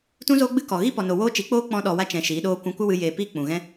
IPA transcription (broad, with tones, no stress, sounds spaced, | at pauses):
t ũ˦ z oː˦ ɡ͡b ɨ˦ k ɔ˨ ɣ i˦ p ɔ˨ n o˨ w oː˧ t͡ʃ i˨˦ k͡p oː˦ k͡p ɔ̃˧ ɗ ɔ˨ w a˧ t͡ʃ ɛ̃˨ ʃ iː˨˦ ɗ oː˦ kʷ ũ˧ kʷ ə˦ w ɨ˧ j eː˨ p iː˧ k͡p ũ˨ ɣ ɛ̃˦